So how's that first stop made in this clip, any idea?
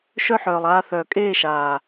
ejective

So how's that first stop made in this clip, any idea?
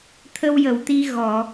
aspirated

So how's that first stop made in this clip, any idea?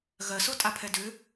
ejective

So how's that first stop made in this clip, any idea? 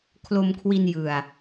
aspirated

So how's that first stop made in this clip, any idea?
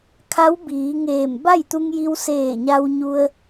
aspirated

